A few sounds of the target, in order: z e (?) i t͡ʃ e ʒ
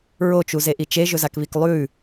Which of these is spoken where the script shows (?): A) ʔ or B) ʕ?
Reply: A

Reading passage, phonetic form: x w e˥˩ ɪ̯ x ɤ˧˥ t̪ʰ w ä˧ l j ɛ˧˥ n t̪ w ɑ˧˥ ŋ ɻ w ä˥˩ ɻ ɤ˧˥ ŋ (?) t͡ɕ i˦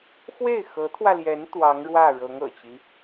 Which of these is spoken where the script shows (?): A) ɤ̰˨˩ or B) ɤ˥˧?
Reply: A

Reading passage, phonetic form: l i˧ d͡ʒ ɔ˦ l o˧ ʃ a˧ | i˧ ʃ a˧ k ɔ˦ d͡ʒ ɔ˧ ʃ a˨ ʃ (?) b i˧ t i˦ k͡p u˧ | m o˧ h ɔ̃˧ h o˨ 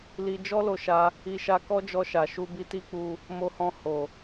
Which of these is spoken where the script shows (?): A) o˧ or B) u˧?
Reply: B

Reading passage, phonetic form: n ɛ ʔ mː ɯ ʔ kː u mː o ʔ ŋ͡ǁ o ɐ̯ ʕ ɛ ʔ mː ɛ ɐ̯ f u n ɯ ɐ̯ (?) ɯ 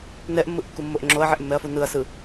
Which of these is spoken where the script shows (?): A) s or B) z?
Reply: A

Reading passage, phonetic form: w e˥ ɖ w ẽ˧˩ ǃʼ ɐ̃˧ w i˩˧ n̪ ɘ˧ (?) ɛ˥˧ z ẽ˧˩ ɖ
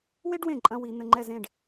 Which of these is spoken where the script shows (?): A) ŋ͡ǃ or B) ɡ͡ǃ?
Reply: A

